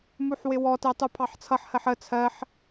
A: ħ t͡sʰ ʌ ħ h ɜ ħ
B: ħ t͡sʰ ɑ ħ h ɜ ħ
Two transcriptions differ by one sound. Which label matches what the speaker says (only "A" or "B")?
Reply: A